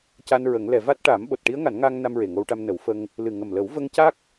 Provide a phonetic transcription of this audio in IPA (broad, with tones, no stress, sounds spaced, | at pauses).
c a˧ n ɹ ə˨˩˦ ŋ l ɛ˨˩˨ v a˦˥ t̚ ʈ aː˨˩˦ m ɓ o˨˩ t̚ ʈ i˧˥ ə̯ ŋ a˨˩˦ n ŋ aː˧ ŋ n a˧ m ɹ e˨˩ ŋ o˧ w ʈ a˧ m n ə˨˩˦ w f ə˧ ŋ | l ɨ˨˩ ŋ ə˨˩ m l ə˨˩˦ w v ə˧ ŋ c a˦˥ k̚